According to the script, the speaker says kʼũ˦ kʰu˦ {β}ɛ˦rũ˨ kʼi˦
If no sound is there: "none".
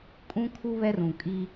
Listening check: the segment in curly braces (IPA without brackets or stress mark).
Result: β